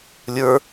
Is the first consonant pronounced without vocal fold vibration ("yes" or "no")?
no